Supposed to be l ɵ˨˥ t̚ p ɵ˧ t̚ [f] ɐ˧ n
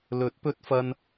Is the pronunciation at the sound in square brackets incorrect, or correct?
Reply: correct